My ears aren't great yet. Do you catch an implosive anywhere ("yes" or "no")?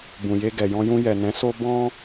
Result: no